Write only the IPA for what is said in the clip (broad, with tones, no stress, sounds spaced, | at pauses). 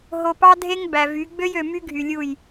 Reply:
ɦ o˨ p ɑ˦ dʱ e˦ ŋ b æ˨ v y˨˦ ɡ͡b ø˦ j ø˨ m y˦ ɡʱ y˨ lʲ u˦˨ j